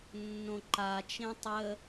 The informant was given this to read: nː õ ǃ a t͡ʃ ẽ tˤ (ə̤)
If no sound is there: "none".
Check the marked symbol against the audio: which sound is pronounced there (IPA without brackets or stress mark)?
ə